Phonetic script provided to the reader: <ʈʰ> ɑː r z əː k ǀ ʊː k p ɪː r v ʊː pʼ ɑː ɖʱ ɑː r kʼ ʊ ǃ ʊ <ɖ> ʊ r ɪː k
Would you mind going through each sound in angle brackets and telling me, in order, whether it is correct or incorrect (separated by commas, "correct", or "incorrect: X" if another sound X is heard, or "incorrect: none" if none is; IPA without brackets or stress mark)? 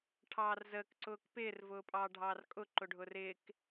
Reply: correct, incorrect: ɖʱ